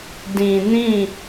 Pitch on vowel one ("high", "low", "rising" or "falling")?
low